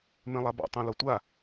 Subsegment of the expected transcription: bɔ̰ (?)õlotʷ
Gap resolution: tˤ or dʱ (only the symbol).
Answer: tˤ